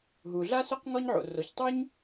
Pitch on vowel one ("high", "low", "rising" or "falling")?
low